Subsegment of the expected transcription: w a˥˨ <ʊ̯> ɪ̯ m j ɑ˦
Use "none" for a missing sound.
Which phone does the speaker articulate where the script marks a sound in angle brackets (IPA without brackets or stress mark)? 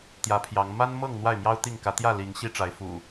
none